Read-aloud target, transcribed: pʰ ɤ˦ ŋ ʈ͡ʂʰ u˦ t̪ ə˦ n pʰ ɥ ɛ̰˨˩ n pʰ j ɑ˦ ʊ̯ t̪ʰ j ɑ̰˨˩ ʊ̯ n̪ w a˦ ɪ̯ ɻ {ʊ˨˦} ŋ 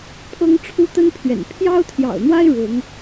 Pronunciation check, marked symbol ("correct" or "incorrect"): correct